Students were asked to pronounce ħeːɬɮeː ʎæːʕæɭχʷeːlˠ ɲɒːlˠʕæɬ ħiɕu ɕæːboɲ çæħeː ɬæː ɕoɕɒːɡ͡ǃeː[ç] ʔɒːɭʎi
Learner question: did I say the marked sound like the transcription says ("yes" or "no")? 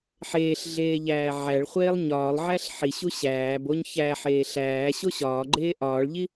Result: no